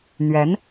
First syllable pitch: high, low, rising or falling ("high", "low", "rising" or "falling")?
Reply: rising